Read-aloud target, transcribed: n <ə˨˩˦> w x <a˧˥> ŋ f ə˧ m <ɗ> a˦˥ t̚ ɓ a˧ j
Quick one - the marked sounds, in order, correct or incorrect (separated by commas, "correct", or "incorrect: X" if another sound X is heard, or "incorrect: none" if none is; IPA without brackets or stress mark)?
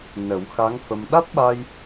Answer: correct, correct, correct